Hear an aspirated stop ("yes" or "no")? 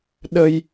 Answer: no